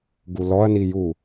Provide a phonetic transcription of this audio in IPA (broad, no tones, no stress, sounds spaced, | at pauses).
ɡ u l ɔ ɐ̯ n i j u